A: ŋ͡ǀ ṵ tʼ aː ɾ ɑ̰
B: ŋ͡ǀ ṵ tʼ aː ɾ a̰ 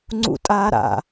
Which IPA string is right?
B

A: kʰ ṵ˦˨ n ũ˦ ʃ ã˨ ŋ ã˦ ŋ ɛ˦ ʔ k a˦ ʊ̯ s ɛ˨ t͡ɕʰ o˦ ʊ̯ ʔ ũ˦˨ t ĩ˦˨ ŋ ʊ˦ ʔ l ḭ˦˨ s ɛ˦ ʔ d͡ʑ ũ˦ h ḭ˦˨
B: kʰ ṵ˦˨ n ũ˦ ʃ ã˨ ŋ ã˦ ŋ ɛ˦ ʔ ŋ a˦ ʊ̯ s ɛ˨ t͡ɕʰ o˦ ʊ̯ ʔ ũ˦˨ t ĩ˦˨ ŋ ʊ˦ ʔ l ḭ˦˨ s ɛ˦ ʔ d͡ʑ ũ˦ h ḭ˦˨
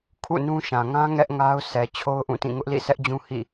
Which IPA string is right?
B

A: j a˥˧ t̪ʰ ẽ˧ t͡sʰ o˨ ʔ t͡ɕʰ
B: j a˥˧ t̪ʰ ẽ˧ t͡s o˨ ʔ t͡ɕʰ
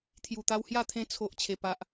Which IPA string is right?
A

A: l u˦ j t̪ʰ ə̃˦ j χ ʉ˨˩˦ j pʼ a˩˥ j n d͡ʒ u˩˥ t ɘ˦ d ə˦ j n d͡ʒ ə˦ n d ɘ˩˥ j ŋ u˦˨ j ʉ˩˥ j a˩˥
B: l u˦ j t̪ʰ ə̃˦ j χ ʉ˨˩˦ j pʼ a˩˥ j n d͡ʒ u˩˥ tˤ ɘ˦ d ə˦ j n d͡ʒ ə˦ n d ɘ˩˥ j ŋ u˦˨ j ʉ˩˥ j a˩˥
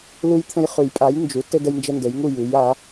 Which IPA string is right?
A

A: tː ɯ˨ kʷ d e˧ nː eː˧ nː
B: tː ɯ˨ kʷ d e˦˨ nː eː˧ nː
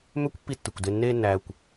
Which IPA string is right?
A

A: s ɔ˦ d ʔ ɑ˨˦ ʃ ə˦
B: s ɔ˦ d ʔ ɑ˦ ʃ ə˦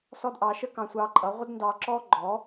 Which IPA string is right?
A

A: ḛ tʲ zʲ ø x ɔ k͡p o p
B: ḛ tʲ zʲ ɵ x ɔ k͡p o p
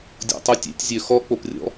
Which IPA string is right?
A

